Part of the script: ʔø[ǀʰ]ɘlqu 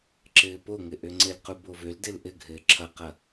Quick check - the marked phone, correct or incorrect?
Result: incorrect